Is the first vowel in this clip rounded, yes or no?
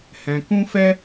no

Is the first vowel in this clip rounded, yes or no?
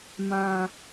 no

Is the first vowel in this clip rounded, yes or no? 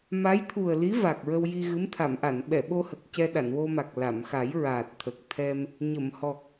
no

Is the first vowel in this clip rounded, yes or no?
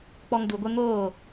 yes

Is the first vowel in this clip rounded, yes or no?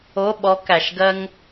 yes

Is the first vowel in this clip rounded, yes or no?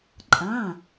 no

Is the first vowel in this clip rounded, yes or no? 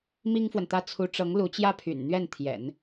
no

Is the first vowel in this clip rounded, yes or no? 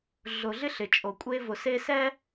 yes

